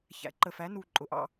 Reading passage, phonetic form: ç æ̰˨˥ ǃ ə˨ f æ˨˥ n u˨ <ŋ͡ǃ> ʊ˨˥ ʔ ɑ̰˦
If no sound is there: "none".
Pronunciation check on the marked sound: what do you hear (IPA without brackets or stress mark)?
ǃʼ